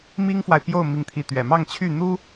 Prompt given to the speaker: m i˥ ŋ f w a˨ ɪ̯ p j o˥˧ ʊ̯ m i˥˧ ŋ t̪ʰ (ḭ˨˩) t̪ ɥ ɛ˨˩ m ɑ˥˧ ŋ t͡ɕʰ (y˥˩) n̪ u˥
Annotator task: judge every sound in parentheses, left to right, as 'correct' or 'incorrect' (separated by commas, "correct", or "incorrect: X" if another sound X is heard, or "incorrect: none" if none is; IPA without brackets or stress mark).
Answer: incorrect: i˥˩, correct